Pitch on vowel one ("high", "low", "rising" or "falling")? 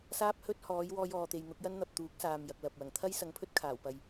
high